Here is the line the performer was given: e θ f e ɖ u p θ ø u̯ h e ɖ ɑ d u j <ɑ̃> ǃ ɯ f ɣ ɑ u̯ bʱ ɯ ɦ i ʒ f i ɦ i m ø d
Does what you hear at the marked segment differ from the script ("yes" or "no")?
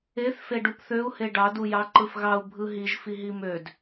yes